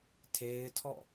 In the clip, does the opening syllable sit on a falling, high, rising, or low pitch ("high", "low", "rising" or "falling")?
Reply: high